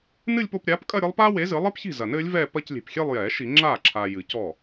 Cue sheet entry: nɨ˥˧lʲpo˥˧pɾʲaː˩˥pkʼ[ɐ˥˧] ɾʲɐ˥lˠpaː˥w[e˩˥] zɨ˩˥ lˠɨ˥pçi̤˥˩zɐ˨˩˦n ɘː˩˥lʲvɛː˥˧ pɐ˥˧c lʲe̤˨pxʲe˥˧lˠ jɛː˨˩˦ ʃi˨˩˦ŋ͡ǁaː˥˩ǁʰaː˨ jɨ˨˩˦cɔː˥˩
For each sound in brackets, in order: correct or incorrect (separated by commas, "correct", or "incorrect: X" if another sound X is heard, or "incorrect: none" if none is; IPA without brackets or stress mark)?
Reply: correct, correct